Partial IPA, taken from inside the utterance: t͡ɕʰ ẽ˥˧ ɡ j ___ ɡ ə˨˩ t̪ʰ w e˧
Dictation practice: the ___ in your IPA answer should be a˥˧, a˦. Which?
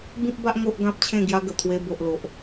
a˦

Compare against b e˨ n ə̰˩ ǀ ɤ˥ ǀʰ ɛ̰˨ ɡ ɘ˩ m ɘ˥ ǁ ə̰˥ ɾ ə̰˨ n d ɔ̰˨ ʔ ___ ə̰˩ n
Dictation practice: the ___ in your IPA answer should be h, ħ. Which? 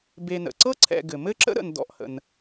h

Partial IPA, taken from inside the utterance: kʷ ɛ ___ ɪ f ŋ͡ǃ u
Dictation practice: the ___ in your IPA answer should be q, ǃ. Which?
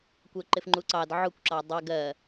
ǃ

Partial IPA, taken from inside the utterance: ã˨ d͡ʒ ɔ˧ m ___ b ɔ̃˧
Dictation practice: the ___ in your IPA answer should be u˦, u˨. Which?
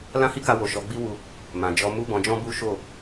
u˦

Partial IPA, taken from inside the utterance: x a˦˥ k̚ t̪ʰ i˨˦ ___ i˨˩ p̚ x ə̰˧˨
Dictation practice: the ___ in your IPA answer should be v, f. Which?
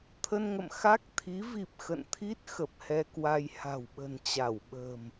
v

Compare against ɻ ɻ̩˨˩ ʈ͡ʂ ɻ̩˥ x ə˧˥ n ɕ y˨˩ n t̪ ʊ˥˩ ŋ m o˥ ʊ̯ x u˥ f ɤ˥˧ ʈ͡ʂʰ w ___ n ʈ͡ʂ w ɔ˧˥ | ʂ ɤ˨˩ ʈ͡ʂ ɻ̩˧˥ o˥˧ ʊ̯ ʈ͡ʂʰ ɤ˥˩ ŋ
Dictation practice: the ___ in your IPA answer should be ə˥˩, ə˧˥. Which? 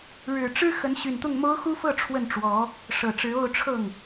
ə˥˩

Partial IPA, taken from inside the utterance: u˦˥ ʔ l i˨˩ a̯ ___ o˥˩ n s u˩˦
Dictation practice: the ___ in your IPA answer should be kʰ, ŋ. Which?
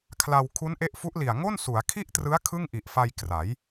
ŋ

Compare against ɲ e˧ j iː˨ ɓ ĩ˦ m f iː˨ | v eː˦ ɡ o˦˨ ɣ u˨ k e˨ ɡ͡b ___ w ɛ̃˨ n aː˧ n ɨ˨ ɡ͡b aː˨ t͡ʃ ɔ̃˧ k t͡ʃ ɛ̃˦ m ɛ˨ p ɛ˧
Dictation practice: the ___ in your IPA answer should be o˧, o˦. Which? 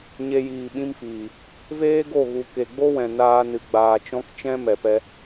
o˦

